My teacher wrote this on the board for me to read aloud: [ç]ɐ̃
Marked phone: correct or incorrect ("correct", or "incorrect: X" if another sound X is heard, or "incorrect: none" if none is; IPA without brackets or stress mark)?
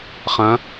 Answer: incorrect: χ